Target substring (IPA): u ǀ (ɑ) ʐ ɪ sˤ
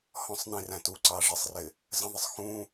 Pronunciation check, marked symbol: correct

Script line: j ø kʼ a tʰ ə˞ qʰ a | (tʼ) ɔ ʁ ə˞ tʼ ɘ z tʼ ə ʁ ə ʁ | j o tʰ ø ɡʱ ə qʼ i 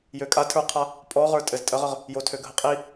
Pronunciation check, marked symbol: incorrect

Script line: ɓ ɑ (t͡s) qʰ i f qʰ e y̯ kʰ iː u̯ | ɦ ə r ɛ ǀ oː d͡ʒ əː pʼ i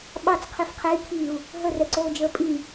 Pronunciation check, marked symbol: correct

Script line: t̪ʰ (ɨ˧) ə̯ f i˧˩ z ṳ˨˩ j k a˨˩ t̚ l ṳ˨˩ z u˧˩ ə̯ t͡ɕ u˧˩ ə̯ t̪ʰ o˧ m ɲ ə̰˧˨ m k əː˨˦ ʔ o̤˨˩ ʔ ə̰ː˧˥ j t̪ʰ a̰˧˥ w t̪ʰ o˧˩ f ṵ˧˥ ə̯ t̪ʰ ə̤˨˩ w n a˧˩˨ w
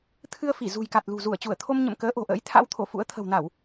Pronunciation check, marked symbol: correct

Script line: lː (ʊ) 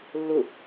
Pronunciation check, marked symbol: correct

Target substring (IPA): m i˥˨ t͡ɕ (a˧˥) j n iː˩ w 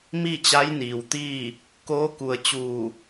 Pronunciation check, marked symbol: correct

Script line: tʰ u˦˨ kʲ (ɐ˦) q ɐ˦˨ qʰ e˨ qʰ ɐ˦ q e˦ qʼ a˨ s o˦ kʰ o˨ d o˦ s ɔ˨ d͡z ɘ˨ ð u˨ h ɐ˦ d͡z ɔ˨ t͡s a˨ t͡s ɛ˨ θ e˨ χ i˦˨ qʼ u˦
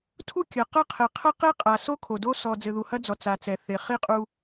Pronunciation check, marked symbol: incorrect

